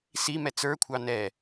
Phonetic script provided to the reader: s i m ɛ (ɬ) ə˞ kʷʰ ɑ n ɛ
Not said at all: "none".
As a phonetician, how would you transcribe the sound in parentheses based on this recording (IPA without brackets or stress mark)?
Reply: t͡s